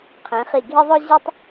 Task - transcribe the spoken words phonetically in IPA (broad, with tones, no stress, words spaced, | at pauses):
qʰẽ˩˧χi˧˩ ɡʱe˥ðˤʊ˥ ʑœ˥tˤ